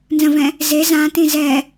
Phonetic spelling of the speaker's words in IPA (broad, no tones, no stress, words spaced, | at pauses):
nzə̃vɛ̃ | ze zãtĩ zɛ